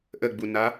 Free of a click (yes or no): yes